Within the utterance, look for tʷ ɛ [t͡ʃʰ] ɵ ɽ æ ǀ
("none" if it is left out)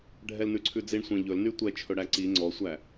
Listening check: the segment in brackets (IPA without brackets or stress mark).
t͡ʃʰ